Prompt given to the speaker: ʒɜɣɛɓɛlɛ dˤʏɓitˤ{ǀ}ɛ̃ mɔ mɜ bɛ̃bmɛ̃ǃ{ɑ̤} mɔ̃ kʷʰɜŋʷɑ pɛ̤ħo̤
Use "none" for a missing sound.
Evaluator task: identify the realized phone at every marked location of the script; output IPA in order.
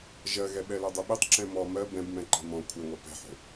ǁ, ɑ̤

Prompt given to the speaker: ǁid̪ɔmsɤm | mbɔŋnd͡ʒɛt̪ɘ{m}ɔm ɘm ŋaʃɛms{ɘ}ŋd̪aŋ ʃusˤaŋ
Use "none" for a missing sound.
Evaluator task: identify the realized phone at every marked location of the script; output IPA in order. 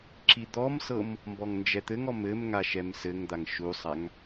ŋ, ɘ

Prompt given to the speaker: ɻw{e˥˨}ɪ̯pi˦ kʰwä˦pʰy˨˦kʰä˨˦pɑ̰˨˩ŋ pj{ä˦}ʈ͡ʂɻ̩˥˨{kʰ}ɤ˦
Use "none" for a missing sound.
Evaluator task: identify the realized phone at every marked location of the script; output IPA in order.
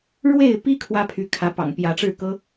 e˥˨, ä˨˦, k

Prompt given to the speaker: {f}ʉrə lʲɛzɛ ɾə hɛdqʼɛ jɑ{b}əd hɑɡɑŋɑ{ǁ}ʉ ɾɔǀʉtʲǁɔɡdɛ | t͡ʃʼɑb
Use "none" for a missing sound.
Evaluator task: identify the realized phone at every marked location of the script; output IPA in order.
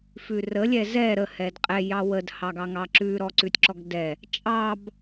f, w, ǁ

